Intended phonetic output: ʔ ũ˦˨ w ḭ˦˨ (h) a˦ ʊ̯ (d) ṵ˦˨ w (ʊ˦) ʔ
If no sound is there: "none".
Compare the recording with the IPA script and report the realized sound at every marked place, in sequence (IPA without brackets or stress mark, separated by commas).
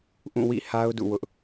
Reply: h, d, ʊ˦